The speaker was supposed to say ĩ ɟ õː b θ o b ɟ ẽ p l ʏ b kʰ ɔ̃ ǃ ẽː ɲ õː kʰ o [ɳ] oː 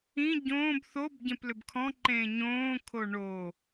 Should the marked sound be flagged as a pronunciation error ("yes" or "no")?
no